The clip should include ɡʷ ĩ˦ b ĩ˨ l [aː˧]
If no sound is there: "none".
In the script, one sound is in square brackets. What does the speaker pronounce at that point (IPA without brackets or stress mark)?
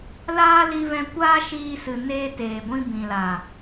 aː˨